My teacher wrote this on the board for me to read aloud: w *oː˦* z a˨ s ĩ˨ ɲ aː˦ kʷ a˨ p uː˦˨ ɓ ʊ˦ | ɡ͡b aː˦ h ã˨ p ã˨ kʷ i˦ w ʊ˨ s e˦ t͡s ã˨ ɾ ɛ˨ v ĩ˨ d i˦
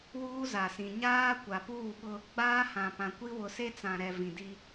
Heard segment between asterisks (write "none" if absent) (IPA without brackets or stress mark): uː˦